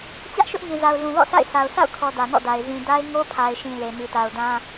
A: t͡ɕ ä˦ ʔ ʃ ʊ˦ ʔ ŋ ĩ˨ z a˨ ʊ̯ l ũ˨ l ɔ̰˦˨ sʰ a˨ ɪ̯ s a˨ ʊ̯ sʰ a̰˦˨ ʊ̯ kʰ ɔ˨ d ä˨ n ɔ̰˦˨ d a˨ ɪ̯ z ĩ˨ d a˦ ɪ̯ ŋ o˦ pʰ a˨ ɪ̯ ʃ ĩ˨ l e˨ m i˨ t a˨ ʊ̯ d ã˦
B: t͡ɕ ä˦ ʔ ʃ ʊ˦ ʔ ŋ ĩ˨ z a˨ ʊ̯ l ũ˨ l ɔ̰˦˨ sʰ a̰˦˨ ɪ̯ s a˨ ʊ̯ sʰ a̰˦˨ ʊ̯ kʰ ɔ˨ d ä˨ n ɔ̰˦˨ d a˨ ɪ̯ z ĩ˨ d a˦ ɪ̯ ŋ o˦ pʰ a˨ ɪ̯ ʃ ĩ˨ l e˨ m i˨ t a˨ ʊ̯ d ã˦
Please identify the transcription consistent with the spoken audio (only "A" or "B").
B